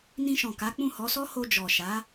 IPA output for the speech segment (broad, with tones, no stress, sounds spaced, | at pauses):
n ĩ˧ ʃ ɔ̃˨ k a˨˦ k͡p ũ˦˨ h ɔ˨˦ s ɔ˦ h o˧ d͡ʒ ɔ˨ ʃ a˨˦